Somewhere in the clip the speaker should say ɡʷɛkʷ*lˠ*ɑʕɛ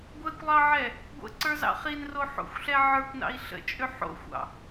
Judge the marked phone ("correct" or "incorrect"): correct